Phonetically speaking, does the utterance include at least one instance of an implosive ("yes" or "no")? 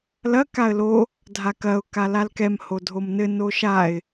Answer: no